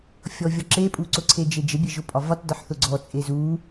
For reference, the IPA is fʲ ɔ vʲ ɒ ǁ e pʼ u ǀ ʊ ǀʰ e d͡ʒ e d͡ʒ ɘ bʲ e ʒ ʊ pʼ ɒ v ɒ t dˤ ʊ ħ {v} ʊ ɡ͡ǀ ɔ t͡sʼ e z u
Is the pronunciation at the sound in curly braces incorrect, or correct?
incorrect